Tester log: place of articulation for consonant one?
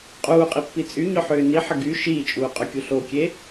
uvular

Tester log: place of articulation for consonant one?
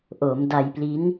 glottal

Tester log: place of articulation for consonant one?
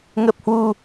velar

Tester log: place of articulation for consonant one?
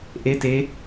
glottal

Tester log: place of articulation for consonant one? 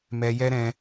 labial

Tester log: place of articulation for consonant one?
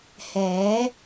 glottal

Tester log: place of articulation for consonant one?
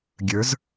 velar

